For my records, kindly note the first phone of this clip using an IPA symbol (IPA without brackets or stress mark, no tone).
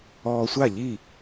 ɔː